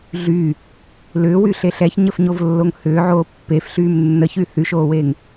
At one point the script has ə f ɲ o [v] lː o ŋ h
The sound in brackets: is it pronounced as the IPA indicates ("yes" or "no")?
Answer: yes